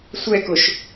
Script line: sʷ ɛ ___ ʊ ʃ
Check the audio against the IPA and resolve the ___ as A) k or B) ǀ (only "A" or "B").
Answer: A